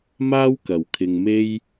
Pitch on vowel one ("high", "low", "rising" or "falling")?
high